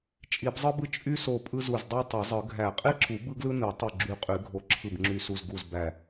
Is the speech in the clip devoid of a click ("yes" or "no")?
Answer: no